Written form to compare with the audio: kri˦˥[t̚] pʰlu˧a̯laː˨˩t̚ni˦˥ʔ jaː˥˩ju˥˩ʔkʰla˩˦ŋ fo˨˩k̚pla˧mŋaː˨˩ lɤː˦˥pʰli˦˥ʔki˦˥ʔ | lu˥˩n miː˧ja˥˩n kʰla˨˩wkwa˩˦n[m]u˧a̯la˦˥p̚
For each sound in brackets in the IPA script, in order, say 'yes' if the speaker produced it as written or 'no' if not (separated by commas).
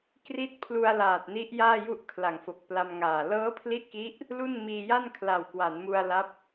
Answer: yes, yes